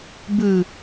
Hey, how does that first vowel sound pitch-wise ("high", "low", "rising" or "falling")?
low